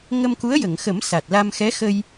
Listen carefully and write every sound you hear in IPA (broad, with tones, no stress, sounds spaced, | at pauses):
ŋ ə˧ m k u˧˥ ə̯ j ə˨˩˨ ŋ x ə˨˩˦ m s a˨˩ t̚ l a˧ m x ɛ˧˥ x ə˧ j